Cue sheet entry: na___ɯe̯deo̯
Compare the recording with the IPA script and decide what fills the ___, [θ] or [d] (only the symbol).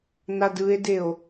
d